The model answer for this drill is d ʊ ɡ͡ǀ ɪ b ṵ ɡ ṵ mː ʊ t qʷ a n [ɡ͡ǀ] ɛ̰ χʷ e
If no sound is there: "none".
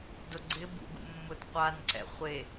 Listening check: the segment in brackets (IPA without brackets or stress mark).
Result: ǀ